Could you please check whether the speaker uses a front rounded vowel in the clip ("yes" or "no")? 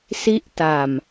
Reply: no